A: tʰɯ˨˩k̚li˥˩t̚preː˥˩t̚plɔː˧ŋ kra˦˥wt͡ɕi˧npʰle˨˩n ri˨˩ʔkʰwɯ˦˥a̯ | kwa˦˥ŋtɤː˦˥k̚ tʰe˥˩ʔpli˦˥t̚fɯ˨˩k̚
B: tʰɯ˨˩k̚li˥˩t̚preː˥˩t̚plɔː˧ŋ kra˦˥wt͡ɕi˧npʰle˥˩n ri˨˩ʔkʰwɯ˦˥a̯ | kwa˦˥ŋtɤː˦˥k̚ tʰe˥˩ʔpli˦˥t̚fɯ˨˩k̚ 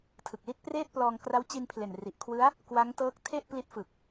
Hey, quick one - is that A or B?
A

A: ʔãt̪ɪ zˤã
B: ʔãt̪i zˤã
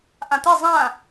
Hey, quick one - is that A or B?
A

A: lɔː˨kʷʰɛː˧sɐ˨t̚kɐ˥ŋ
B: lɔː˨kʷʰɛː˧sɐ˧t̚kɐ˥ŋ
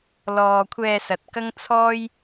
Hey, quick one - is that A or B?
A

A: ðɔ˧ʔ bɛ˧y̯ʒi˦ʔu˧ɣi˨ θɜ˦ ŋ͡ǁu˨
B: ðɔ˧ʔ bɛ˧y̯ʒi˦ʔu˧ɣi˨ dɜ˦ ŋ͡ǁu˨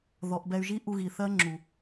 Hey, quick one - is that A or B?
A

